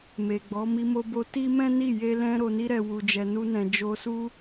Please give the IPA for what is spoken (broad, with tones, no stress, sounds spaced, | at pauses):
m e˨ ɡ͡b ɔ˨˦ m i˧ m o˧ b o˧ t i˦ m ɛ̃˦ n i˦˨ j e˧ l ɛ̃˧ ɾ o˨ n i˧ ɾ ɛ˨ w u˨ d͡ʒ ɛ˨ n u˧ n ɛ̃˨ d͡ʒ o˧ s u˦